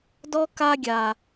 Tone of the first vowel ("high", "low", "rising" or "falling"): high